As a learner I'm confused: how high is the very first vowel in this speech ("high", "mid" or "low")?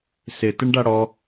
high